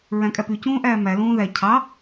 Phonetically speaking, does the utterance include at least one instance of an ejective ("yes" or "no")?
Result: yes